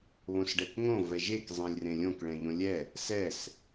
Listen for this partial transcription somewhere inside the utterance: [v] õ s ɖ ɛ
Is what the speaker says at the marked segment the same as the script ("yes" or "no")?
no